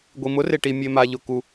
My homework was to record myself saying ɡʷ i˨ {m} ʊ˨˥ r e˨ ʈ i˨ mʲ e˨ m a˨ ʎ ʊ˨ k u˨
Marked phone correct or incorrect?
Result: correct